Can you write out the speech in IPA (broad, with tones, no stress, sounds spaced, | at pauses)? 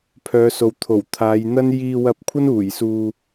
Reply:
pʰ œː˨˧ s o˨ w t̪ʰ o˨˩ w t̪ʰ aː˨˧ j n̪ ɐ˥ n j iː˧ w ɐ˧ p̚ kʷʰ ɐ˥ n uː˨˩ j s uː˧